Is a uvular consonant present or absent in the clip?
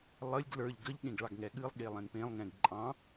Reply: absent